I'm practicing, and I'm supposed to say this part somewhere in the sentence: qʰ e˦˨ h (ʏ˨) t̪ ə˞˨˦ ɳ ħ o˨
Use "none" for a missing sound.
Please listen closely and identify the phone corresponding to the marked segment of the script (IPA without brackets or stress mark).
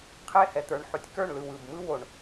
ɛ˨